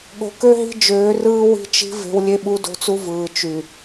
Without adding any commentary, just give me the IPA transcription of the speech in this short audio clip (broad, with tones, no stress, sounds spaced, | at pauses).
ɠ o̤˨ k ø˦ ɦ i̤˦ d͡ʒ øː˨˦ r ɯː˦ w i̤˦ t͡ʃ i̤˦ v e̤˦ w lʲ e˦ ɓ u˦ d o̤˦ t͡s u˦ v ɯː˨ t͡ʃ y˨